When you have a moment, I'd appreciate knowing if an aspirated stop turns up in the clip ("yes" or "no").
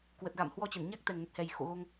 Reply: no